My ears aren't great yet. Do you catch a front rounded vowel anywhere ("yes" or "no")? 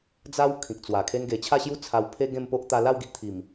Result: no